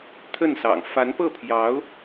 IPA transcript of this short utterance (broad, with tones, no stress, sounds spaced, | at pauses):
t̪ʰ ə˥˩ n s ɑ̰˨˩ ŋ f a˧˥ n p ɤ˥˩ pʰ j ɑ˧˥ ʊ̯